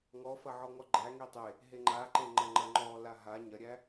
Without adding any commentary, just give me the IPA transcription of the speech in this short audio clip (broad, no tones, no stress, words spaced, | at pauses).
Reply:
ŋɔfɐʕɔŋɔ ɡ͡ǃæ ŋitˤe | ɦeŋ͡ǃaǃeŋ͡ǃɐ ŋ͡ǃɐŋ͡ǃɔ laɦa ɲɐɾʲæ